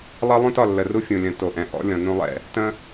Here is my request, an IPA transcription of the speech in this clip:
lˠ ʌ˦ lˠ ũ˦ t ɒ˦˨ lː ə˨ r u˦ fʲ ũ˨ lʲ ə̃˨ t o˨ ʔ ɛ̃˨ ʔ ɔ̰˦ lʲ ɔ̃˨ n ũ˦ lˠ ɛ̰˦ | t ə̃˦

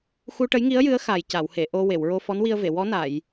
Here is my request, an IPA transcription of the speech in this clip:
x u˧ ʈ ə˧˥ j ŋ i˧˥ ə̯ j ɨ˧˥ ə̯ x a˨˩ j c a˨˩˨ w h e˨˩˨ ʔ o˧ w e˨˩˨ w ɹ o˧ f ɔ˧˥ n w i˧ ə̯ v e˨˩˨ w ɔ˧˥ n a˨˩˨ j

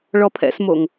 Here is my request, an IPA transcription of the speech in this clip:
ɭ ɔ pʰ ɛ̰ s m o ŋ

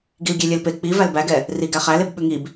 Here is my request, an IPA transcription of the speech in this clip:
ɡ i l ɡʲ e lʲ e l p e k͡p i v æ l b æ ɡ ɛ | r i ɡ æ χ æ l e b ɓ ʉ ŋ i b

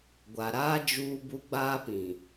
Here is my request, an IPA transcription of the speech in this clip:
ɡʷ a˨ ɾ aː˦ d͡ʒ uː˦ b u˦ ɡ͡b aː˦ p ĩ˨

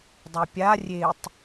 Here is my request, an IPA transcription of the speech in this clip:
dˤ u pʲ a rʲ e tˤ

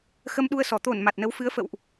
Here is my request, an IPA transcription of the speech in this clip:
x ə˧ m ɗ u˧ ə̯ s ɔ˧˩ t̪ o˧˩ n m a˨˩ t̚ n ə˨˦ w f ɨ˨˦ ə̯ f ə̰˧˨ w ʔ

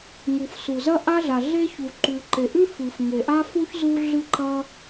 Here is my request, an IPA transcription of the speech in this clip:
ŋ u˩ f s u˩ z ɐ˥ ʔ a˥ ɮ a˩ ɮ e˥ ç u˩ ǃ ʉ˩ ǃ e˩ ʔ ʉ˥ f ɨ˩ f ŋ e˩ ʔ a˥ f u˥ ç z u˥ ɮ ɨ˥ ǃ ɐ˥

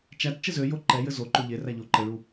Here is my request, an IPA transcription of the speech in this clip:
t͡ʃ æ t t͡ʃ ɘ z ø j o ǃ ɛ j ɘ z o ǃ o ʎ e r æ ʎ o ǃ ɘ ɭ u

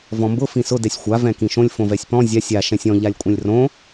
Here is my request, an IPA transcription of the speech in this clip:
v ɔ̃ m b ʊ f ĩ s ʊ d ɛ sʲ xʷ a v ɛ̃ k ĩ ʃ õ lʲ f õ v ɛ sʲ p ɔ̃ zʲ a sʲ a ʃ ɛ̃ sʲ ɔ̃ ʎ a lʲ kʷʼ ɛ̃ lʲ r õ

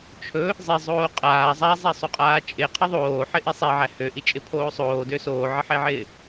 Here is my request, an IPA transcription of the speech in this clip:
t͡ʃʰ ɵ | zˤ e zˤ oː qʼ aː zˤ æ zˤ æ sˤ o qʼ aː t͡ʃʼ ɪ qʰ ə ðˤ oː ħ ɪ ʔ e sˤ e ʕ æ h ø ʔ i t͡ʃʼ ɪ pʰ oː sˤ oː d ø s oː ʕ ə ħ e ʕ ɪː

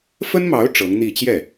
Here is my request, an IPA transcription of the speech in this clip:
f ə˥ n m ɑ˧˥ ʊ̯ ʈ͡ʂ ɤ˧˥ ŋ n̪ i˥˧ t͡ɕ j ɛ˥˩

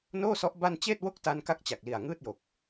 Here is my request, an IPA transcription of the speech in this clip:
n oː˥˩ s ɔ˦˥ ʔ b a˥˩ n t͡ɕ eː˥˩ t̚ w o˥˩ k̚ t a˧ n k a˦˥ k̚ t͡ɕ a˨˩ k̚ l i˨˩ a̯ ŋ ɯː˥˩ t̚ j o˨˩ k̚

